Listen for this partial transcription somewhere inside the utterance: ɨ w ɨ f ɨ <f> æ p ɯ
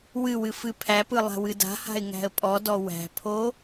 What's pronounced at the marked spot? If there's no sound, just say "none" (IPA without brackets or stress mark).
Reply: pʰ